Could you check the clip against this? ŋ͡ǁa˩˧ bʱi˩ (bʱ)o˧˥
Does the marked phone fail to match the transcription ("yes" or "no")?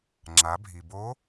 yes